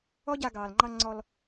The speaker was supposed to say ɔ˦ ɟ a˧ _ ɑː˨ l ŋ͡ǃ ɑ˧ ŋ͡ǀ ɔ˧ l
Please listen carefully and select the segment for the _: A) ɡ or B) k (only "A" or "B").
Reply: A